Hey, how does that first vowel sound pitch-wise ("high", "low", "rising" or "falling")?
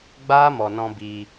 high